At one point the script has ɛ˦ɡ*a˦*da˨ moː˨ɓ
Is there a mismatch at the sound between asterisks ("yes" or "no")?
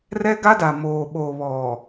no